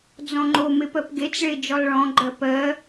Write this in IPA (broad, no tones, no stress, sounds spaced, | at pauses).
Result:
d͡z ɔ̃ ŋ͡ǃ o m e p ɜ p ɡ e t͡s ɭ e d͡ʒ ɔ lˠ ɭ ɔ̃ ɡ͡ǃ ɜ p ɜ